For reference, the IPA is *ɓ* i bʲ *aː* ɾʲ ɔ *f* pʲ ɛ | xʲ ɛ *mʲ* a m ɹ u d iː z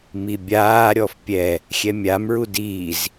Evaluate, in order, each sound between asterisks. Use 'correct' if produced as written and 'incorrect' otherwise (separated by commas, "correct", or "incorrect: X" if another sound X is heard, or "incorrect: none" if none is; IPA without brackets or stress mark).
incorrect: m, correct, correct, correct